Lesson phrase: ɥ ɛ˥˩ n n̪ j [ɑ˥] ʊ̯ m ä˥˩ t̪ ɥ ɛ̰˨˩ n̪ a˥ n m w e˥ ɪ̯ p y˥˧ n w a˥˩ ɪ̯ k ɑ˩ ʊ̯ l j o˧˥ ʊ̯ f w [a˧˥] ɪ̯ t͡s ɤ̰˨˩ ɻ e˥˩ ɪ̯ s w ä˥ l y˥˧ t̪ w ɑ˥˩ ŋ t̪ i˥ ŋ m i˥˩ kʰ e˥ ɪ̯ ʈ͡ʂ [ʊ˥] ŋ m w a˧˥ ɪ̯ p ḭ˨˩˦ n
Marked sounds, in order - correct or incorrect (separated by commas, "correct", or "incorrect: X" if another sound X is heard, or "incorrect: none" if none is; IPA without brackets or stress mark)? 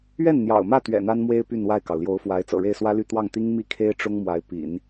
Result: incorrect: ɑ̰˨˩, correct, correct